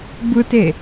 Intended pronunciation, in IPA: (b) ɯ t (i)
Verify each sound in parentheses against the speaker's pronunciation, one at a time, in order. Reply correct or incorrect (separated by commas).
correct, incorrect